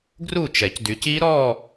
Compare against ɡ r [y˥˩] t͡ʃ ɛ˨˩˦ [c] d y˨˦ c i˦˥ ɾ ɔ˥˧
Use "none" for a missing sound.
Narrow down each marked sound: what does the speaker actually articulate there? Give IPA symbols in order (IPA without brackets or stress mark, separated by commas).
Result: u˥˩, c